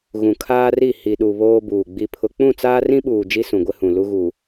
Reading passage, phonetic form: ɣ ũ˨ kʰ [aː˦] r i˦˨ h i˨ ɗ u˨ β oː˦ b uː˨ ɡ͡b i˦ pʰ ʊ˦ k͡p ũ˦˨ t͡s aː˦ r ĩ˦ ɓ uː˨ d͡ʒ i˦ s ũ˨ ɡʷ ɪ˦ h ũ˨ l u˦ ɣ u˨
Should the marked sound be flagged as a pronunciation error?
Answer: no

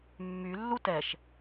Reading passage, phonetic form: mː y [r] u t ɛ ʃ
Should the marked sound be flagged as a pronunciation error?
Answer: yes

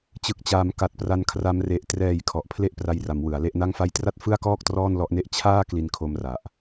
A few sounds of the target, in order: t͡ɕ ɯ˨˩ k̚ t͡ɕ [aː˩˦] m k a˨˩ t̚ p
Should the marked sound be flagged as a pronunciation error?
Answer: no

